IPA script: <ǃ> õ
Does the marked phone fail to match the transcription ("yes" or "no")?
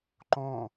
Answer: no